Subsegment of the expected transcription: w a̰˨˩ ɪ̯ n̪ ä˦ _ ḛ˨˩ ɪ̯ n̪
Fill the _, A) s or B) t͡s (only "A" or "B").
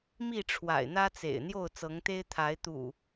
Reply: B